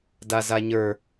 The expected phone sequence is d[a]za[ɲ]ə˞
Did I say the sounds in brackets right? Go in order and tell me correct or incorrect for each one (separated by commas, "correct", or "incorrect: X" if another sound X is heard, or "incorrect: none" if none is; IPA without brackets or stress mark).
correct, correct